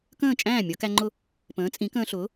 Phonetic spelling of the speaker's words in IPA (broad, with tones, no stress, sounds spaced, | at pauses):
k ə̃ː˥˩ t͡ʃʼ æ̃ː˥˩ mʲ ʌ˨˩˦ k æ˧ ŋ͡ǃ ʊ˥˩ | p ə̃ː˩˥ t͡sʼ ĩ˩˥ k ə̃ː˧ ɬ ʊː˩˥